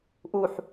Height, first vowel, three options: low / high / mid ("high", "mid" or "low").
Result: high